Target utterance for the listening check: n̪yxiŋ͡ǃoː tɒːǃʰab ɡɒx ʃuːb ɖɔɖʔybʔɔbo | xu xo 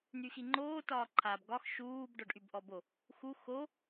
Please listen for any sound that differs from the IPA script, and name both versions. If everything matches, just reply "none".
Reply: none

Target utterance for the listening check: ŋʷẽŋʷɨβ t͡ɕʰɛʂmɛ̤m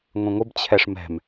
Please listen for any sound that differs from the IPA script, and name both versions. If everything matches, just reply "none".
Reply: β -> b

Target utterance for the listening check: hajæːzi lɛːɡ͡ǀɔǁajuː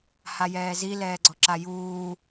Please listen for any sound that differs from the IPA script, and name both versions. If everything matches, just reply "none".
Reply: æː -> ɛː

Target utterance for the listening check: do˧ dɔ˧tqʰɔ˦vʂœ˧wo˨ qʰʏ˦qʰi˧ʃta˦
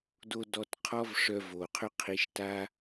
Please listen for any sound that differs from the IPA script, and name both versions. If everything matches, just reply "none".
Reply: w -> v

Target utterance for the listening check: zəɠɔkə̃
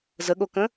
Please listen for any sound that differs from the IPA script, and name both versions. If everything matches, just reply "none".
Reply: ɔ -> o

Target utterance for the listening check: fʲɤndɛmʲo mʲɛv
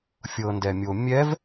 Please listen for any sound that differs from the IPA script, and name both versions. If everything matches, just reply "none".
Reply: none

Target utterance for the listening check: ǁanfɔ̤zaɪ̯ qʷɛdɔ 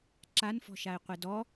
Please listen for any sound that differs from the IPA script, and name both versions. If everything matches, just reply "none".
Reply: z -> ʃ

